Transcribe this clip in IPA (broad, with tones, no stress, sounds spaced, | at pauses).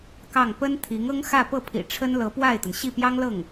k ɑ˥˩ ŋ p ə˥ n t̪ʰ i˧˥ ŋ ɤ˥ ŋ x ä˥˧ p ɤ˥˩ pʰ ḭ˨˩ ʈ͡ʂʰ ə˥ n l ɤ˧˥ p w a˥˩ ɪ̯ t̪ ə˩ n ɕ i˥˩ p j ɑ˥ ŋ l ɤ˥˩ ŋ